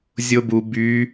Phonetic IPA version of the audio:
zʲobu by

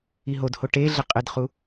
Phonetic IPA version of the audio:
iɦodho ʈeɮɪ qʼɪdχu

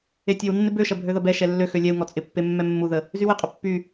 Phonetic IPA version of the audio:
etʲewnːɪ bøʃɐ bʱøðɐbɛʃɛ lːøxø lʲɛu̯ŋɔ t͡sʼɪpːe mːɛmːuðə | zywɪqʼə pːy

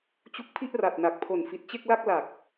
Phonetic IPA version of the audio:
t͡ɕu˦˥k̚ pʰi˥˩ʔra˨˩t̚na˨˩k̚pʰo˨˩n fi˨˩t̚t͡ɕe˥˩k̚la˥˩k̚ la˨˩k̚

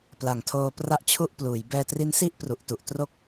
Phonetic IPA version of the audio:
pla˨˩ŋtʰoː˧ pra˥˩ʔt͡ɕʰu˥˩ʔpluː˩˦j bɛː˧tri˦˥nsi˥˩ʔ pru˨˩ʔtu˨˩ʔtro˥˩k̚

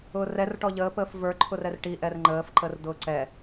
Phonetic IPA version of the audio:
ʊːrɛr ʈɔʎəː pəːfvə˞ ǃʰʊrɛrʈi ʔɛrŋ͡ǃəːf ǃərdʊːǀɛ

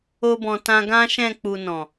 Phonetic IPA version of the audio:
o˧bɔ̃˨tã˧ ɡã˦ʃɛ̃˦˨ k͡pu˧nɔ̃˨

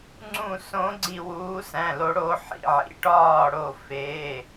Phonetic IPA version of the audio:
ŋ͡ǀũ˧˩sõ˨˦ɡ͡ǀi˧˩ wuː˨˦sæ̃˩˧˩lo˨˦ɽo˨˦ ħḭ˩˧˩ʕḭ˩˧˩ʈɒː˧˩ ɽo˧˩feː˩˧˩

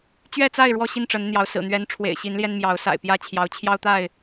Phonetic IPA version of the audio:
t͡ɕɥɛ˥˨t͡sa˥˨ɪ̯ ɻwɔ˥˨ɕi˥˨nʈ͡ʂə˨˦nn̪jɑ˨˦ʊ̯ sɹ̩˨˩n̪ɥɛ˨˦n ʈ͡ʂʰwḛ˨˩ɪ̯ɕi˨˦nljɛ˧nmjɑ˨˦ʊ̯ sa̰˨˩ɪ̯pjä˦ t͡ɕʰjɑ˨˦ʊ̯t͡ɕʰjɑ˦ʊ̯t̪a˥˨ɪ̯

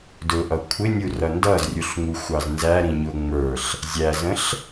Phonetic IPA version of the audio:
dʊʔʌ kʷʰɪnʲu rʌndʌzrʲuɬŋ͡mu xʷɑznzæɾĩɲʊ ŋ͡mə˞ɬ | zʲæzə̃ɬ

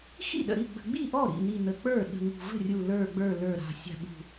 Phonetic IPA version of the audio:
xḭ˥˩ ɗə̰˨˩ ɾi˥˩ɡ͡bə̤˨˩ɡ͡bi˥˩ ʔɔ˥˩ɾḭ˨˩ n̪i˨˩ n̪ə˨˩k͡pə˞˥˩ ɗə̤˨˩ŋṳ˨˩və̤˥˩rʲu˨˩ lə˞˨˩ɡ͡bə˞˨˩ lə˞˨˩ɾa̤˨˩ sʲa̤˨˩ ɓṳ˨˩

